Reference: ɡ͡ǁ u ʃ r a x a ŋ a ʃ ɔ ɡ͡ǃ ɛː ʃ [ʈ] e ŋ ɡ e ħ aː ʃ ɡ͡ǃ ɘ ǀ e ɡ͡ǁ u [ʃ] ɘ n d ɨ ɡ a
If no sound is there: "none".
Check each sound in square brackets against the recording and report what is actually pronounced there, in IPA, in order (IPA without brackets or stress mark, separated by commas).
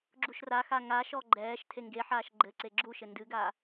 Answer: tʰ, ʃ